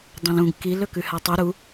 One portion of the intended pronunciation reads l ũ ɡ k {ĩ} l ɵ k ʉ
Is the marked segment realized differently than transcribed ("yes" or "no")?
yes